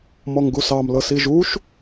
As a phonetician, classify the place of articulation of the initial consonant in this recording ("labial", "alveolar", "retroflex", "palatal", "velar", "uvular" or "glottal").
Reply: labial